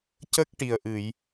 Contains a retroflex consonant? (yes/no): yes